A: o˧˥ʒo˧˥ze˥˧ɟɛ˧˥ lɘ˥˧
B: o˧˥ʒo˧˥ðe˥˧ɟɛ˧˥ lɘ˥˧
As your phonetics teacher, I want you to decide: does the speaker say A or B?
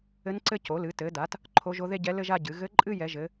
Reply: B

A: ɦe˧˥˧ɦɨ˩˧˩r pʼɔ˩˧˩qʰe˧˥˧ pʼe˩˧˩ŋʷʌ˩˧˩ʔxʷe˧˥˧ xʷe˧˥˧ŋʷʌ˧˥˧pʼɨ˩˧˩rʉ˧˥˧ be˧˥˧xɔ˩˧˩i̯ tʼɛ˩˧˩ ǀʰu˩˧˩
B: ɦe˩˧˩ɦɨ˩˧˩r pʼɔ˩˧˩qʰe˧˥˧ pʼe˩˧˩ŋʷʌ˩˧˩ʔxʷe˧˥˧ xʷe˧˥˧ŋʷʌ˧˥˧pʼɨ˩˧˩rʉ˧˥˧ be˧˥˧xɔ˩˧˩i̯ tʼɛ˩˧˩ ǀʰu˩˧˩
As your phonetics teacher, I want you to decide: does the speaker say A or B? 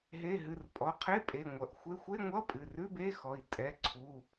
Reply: B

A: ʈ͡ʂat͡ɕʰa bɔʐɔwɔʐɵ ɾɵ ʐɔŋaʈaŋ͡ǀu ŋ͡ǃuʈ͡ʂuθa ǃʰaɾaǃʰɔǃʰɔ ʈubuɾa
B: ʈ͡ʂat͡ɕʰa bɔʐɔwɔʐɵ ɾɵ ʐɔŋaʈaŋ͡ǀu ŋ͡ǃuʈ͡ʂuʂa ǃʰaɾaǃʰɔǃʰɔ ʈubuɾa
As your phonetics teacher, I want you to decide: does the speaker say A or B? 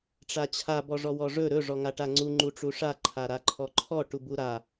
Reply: B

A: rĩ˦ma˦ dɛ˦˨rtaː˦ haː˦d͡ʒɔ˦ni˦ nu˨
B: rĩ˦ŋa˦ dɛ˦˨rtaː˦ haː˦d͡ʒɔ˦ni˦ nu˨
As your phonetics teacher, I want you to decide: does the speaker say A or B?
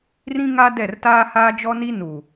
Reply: B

